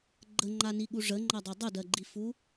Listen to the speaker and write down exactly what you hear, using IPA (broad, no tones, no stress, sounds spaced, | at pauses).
ɡ͡ǃ ə ŋ͡ǃ a n i ɠ u ʐ ə ŋ͡ǃ ʌ dˤ e dˤ ə d ɜ ɡ͡ǃ i f u